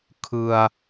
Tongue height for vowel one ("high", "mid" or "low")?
high